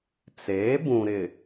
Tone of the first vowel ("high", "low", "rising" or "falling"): rising